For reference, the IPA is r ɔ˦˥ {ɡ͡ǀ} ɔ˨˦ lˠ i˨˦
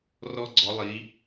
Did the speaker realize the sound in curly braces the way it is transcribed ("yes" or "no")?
yes